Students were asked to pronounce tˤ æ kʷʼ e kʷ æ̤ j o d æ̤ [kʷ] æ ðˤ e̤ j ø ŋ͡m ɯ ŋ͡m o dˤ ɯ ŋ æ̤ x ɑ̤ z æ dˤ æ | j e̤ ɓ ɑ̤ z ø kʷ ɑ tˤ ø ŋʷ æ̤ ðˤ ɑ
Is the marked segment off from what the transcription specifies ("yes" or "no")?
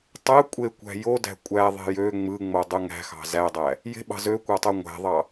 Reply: yes